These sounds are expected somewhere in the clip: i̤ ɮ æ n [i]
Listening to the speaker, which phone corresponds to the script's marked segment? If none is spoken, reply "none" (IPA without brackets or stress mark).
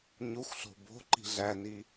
i